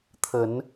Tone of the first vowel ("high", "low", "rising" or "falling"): rising